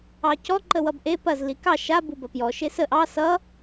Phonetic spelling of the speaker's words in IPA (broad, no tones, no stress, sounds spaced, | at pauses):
ɑ c ɔ ǃ ə w ʌ b ʔ e p ɐ z l i k ɑ ʃ a b u b ɐ p j ɔ ʃ e s ə ʔ ɑ s ʌ